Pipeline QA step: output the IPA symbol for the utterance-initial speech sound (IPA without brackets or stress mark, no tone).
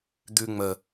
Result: d̪